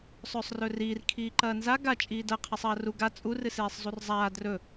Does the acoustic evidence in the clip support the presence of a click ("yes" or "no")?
yes